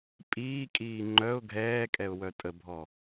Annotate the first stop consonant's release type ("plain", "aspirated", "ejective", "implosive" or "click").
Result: ejective